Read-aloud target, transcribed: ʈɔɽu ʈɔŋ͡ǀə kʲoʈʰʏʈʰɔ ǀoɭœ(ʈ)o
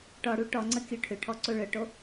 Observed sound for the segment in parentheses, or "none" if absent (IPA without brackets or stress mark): ʈ